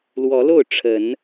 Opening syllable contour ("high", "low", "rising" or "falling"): rising